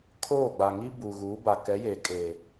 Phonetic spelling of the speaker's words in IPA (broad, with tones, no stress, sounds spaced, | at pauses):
kʰ oː˦˨ ɡ͡b a˨ ŋ i˦ b uː˨ ɣ uː˨˦ b a˨ k ɛ˨˦ j eː˨ kʼ eː˨